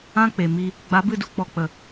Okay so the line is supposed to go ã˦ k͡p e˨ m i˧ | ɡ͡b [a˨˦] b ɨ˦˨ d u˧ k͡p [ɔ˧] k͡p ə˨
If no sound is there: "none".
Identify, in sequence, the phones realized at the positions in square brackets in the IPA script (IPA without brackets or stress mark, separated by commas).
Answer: a˨˦, ɔ˧